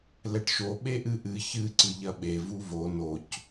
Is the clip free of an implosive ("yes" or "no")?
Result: no